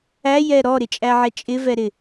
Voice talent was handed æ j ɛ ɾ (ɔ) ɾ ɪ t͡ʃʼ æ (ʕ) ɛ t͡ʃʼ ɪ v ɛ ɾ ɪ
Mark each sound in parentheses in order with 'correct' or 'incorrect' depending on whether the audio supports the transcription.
correct, correct

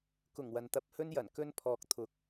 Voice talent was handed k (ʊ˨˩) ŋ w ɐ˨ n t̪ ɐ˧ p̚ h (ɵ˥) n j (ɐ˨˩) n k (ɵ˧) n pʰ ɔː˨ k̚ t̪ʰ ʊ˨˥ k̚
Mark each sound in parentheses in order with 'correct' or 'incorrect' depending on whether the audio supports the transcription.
correct, correct, correct, correct

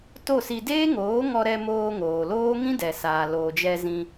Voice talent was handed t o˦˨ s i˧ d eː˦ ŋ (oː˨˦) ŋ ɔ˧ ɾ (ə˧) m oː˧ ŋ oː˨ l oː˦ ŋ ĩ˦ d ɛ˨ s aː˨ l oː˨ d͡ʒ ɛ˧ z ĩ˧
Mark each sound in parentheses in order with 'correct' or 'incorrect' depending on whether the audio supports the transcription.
correct, incorrect: ɛ˧

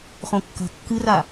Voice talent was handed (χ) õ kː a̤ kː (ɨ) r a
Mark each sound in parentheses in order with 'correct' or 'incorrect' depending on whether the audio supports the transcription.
correct, correct

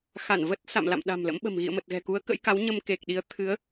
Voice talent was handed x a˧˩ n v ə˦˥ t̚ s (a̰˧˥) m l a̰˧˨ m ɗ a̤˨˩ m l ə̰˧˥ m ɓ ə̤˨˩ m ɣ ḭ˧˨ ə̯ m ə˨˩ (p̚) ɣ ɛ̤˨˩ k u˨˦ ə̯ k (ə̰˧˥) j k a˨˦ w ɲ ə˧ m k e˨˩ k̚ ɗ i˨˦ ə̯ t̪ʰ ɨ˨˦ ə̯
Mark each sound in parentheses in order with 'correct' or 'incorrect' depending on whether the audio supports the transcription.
incorrect: a̰˧˨, incorrect: t̚, correct

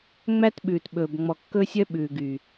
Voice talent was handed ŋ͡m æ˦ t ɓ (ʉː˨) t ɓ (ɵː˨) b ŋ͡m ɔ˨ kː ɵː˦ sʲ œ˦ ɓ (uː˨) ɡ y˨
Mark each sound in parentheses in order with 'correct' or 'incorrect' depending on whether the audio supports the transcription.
correct, correct, incorrect: ʉː˨

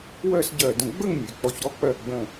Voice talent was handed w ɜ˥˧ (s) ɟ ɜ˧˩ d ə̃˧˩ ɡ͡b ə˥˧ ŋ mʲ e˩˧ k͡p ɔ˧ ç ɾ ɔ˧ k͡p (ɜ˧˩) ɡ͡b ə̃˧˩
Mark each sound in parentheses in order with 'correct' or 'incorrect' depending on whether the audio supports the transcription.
correct, correct

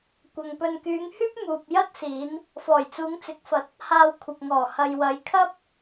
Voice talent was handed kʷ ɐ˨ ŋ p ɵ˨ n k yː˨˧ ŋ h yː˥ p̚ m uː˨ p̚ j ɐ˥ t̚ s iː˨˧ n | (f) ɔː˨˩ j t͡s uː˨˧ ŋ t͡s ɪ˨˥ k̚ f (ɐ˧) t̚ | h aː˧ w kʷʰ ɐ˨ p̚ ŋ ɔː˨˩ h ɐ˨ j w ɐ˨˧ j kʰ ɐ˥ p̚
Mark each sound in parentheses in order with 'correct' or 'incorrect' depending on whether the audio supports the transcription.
correct, incorrect: ɐ˨˥

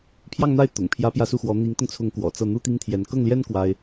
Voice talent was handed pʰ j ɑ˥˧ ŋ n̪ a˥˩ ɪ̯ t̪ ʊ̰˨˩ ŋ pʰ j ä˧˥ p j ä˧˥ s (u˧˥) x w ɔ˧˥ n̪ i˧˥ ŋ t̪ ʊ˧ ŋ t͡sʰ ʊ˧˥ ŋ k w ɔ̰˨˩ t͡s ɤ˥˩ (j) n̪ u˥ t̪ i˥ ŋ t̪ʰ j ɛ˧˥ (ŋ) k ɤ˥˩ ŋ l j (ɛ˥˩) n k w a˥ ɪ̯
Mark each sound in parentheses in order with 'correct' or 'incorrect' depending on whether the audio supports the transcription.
incorrect: u˥˩, incorrect: none, incorrect: n, incorrect: ɛ˥

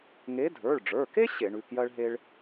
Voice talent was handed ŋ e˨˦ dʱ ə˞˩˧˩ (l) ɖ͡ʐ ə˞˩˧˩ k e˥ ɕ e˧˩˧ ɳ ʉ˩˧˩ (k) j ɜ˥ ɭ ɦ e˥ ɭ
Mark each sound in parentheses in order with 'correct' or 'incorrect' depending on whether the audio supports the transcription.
incorrect: ɭ, correct

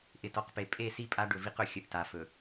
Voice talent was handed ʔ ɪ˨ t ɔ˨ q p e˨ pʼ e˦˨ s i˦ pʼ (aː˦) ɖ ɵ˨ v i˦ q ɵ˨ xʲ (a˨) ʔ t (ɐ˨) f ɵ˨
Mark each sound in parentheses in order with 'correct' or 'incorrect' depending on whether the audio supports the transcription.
incorrect: a˦, incorrect: ə˨, incorrect: a˨

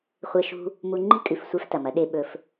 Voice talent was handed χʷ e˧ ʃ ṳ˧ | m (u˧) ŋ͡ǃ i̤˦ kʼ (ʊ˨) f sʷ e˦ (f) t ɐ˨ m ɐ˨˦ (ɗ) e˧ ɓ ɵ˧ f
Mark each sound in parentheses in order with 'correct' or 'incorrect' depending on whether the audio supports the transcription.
correct, incorrect: ʉ˨, correct, correct

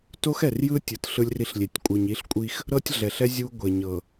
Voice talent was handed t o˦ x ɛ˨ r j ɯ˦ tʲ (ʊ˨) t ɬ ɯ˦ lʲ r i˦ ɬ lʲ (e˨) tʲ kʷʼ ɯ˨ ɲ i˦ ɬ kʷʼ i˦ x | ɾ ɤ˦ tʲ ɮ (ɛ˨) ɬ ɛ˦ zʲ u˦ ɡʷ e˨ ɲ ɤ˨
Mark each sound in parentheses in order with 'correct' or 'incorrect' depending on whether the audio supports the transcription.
incorrect: ɯ˨, correct, correct

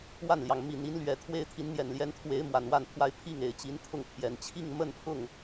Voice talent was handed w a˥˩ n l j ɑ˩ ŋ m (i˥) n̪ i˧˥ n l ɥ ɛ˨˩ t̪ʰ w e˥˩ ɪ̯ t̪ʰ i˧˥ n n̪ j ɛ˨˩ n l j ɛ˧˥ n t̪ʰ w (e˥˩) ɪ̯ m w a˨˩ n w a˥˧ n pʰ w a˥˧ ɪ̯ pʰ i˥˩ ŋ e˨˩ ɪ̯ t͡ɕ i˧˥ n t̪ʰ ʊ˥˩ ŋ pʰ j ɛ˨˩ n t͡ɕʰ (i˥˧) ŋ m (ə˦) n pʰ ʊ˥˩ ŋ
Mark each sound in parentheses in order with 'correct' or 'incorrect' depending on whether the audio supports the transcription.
incorrect: i˨˩, incorrect: e˧˥, correct, incorrect: ə˥˧

